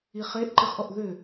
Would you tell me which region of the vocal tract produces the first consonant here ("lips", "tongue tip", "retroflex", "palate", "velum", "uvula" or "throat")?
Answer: uvula